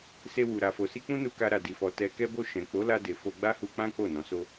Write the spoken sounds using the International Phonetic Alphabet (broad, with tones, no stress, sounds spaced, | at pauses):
s e˧ w u˨ ɾ a˨ f o˨ s i˧ k͡p ũ˦ n u˧ k a˧ ɾ a˨ d i˨ f ɔ˨ t ɛ˧ k ɛ˦ b o˦˨ ʃ ɛ̃˨ k͡p o˨˦ l a˧ d e˨ f o˧ ɡ͡b a˦ h u˧ k͡p ã˦ k͡p o˦˨ n ɔ̃˨˦ s o˦